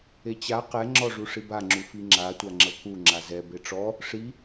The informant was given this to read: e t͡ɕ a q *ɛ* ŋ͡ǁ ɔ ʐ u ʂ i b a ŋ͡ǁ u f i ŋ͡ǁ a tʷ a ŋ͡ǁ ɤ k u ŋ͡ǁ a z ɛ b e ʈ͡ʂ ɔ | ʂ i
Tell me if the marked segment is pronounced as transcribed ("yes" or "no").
yes